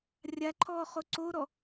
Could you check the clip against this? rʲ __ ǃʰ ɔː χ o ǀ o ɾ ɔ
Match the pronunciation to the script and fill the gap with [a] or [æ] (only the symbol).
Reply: a